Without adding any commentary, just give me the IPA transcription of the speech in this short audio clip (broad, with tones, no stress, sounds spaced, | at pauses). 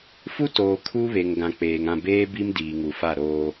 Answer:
f u˦ t oː˨ kʰ u˦ β e˨ ŋ ɡ ã˨ k͡p eː˨ ŋ ã˦˨ b eː˦ b i˦ m d iː˨ ŋ u˨ f a˦˨ ɾ oː˦